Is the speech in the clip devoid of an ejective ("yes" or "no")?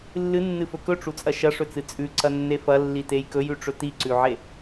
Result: no